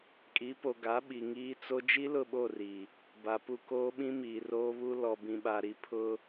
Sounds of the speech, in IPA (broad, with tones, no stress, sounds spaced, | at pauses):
kʼ i˨˦ p o˨ ɡ a˨˦ ɓ i˨ ŋ iː˦ t͡s o˦ d͡ʒ i˦ l ʊ˦˨ ɓ o˦˨ r i˨ | b a˨ p u˦ k oː˦ ɓ ĩ˦ m iː˨ r oː˦ β u˦ l ɔ˨ b ĩ˨ ɓ a˨ ɾ i˨ pʰ ʊ˦